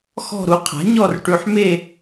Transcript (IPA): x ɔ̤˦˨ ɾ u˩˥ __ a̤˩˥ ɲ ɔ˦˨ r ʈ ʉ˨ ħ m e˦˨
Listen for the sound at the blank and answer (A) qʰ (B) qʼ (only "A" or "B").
A